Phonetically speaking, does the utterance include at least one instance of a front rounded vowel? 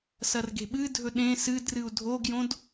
no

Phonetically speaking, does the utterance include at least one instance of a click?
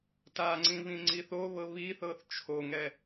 yes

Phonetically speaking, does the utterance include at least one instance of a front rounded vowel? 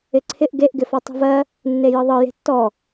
no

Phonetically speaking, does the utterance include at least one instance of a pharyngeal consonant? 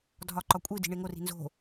no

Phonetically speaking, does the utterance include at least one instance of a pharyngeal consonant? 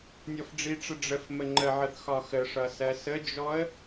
yes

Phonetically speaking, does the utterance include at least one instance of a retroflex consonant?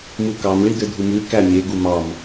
yes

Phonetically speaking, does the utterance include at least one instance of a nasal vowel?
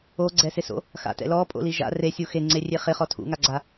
no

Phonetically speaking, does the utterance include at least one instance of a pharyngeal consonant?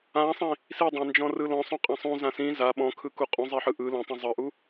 yes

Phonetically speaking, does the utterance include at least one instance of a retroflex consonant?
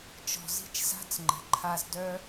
no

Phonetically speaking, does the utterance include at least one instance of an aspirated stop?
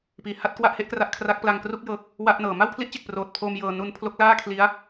yes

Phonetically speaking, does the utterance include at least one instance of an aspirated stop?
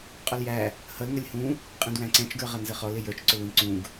no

